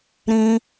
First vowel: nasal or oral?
nasal